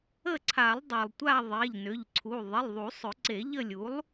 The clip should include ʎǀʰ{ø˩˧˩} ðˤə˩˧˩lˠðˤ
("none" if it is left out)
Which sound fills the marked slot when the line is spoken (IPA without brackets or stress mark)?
u˩˧˩